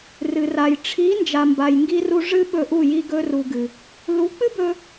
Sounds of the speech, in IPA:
r ɨ˨ r a˨ j ʈ͡ʂʰ i˨˦ n d͡ʒ a˨ m b a˨ j ŋ ɡ i˧ r u˧ ʐ ɨ˦ ɓ ɵ˧ ʔ u˦˨ j i˧ ɡ ɵ˧ r u˨ ɡ ɨ˨ | l u˨˦ k͡p ɨ˦ b ɵ˧

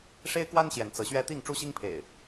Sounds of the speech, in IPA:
ʂ e˦ ɪ̯ k w a˦ n ɕ j ɛ˨˦ n t͡s ɤ˨˦ ɕ ɥ ɛ˦ t̪ i˥˨ ŋ ʈ͡ʂ u˦ ɕ i˦ ŋ pʰ ḛ˨˩ ɪ̯

